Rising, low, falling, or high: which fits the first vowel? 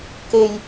low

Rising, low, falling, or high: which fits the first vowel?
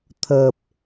low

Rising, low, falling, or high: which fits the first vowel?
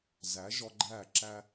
rising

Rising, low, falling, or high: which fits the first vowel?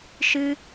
high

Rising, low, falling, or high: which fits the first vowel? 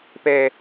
low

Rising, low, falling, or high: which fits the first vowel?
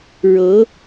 rising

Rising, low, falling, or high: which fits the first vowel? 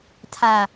low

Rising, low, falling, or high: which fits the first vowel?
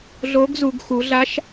rising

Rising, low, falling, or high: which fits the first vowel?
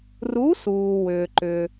rising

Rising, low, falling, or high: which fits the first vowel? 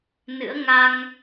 rising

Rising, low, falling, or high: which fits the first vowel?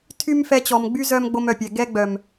high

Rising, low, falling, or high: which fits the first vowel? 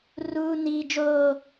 high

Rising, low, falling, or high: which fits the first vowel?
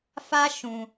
high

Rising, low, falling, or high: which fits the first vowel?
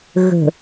low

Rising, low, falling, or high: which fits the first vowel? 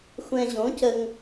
low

